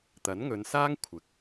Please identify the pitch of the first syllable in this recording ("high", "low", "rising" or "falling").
rising